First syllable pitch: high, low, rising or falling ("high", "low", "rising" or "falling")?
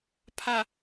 low